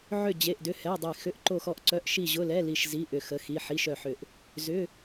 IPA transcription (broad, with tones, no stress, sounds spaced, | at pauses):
ʕ ʏ˦˨ d͡ʑ e˧˥˧ ʔ d ʏ˧˥˧ h ɛ˧˥˧ dˤ e˦˨ x ʏ˧˥˧ ʔ ǃ o˦˨ x ɔ˦˨ ʔ ǀ œ˧˥˧ ʔ ʃ i˦˨ ʑ ʊ˧˥˧ l ɛ˧˥˧ l i˦˨ ʃ z i˧˥˧ ʔ ʏ˦˨ x ə˧˥˧ x i˧˥˧ ħ i˧˥˧ ʃ œ˦˨ ħ ʏ˦˨ ʔ | z ʏ˧˥˧